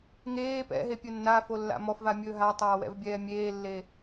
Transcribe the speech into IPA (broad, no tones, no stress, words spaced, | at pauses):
ŋeː pɛ̰ɦepʲɵ nːafolːa̰ mɔfvamʲɵː ɦatˤaːwɛ̰vbʲɛː mʲeːlːe